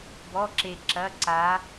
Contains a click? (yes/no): yes